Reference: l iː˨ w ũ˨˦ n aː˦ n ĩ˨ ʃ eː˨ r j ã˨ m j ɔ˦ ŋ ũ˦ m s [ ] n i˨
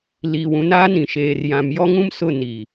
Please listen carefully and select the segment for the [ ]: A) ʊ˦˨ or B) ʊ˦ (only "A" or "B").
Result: A